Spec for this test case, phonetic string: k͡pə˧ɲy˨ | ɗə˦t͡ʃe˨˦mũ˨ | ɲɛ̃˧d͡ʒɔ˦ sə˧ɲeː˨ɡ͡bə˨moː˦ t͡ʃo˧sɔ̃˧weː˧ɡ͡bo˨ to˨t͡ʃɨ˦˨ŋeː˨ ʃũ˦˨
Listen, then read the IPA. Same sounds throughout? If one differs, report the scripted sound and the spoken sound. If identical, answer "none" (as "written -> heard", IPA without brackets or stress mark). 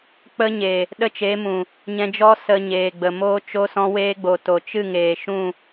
y˨ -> e˨